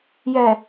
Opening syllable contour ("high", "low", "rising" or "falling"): low